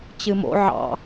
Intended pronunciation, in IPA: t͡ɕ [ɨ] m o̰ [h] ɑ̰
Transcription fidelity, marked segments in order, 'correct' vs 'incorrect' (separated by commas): correct, incorrect